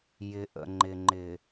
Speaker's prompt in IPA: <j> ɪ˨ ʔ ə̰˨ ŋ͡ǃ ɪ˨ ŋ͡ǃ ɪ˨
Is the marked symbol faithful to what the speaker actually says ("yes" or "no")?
yes